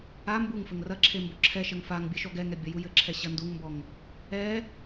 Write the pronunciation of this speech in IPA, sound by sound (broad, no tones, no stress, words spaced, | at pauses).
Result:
a mbuŋfɘŋ rɐǁʰe mboǁʰɛʃɐŋ faŋbʲɘ ʃɔɡɛŋɛ bʲɐjujɘǁʰɛ ɕɐnduŋmbɔŋ | ɛ